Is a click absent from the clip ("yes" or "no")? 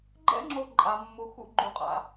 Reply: no